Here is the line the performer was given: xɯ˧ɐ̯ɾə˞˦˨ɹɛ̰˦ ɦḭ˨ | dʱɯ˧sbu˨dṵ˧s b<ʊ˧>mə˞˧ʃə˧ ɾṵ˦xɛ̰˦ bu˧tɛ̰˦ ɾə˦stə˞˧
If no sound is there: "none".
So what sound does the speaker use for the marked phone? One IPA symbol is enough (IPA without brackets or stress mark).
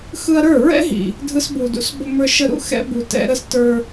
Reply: ʊ˧